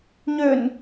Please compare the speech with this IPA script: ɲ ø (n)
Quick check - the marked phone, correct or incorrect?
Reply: correct